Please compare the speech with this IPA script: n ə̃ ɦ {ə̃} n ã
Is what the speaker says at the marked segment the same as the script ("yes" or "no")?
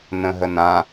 no